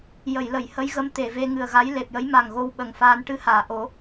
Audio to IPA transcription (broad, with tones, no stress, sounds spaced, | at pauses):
j ə˨˩˨ j l ə˨˩˨ j h ə˧˥ j ɣ ə˧˥ m t̪ e˨˩˨ v e˧ ŋ ɨ˨˩ ə̯ ɣ a˧˥ j l e˨˩ p̚ j ə˧˥ j m a˨˩ ŋ ɣ o˧ w ɓ ə˨˩ ŋ f aː˧ n ʈ ɨ˧˥ h aː˨˩˨ ʔ o˨˩˦